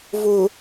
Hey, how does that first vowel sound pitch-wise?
low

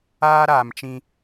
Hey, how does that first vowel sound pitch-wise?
high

